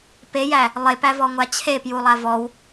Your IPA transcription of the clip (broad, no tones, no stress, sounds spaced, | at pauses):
p e j æ | lˠ e p æ v ɔ ŋʷ a t͡ɕʰ e p j u lˠ a v ɔ w